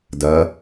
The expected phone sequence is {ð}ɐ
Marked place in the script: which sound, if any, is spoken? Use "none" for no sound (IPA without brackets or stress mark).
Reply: d